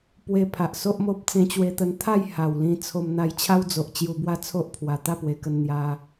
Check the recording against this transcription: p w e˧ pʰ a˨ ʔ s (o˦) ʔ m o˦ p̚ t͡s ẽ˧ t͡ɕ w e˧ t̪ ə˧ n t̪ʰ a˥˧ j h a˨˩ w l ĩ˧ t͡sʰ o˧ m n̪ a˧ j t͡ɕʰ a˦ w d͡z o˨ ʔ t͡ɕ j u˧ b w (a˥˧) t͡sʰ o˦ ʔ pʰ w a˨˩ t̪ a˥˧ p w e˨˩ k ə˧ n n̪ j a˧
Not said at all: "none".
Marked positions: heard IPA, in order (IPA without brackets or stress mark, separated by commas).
o˦, a˥˧